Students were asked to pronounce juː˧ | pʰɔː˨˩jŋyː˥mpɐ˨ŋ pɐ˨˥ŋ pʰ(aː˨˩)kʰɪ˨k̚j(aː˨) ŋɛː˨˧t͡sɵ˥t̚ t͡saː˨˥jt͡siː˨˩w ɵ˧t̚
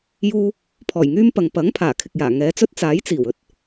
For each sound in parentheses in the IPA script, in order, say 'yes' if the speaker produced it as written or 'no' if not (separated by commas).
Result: yes, no